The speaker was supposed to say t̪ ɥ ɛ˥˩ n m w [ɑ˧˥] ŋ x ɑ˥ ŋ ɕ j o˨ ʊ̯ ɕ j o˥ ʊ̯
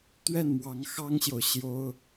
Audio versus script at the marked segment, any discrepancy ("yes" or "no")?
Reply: no